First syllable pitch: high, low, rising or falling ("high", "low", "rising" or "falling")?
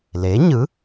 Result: rising